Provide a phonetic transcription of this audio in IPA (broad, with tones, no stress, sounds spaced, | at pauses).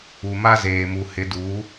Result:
u˨ m a˦ z eː˨ m u˨ h ɪ˨˦ d uː˨˦